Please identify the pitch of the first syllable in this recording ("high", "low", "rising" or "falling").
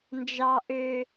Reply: low